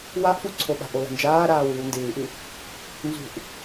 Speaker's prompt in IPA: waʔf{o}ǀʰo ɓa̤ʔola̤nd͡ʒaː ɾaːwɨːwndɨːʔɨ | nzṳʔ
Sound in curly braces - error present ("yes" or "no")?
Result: yes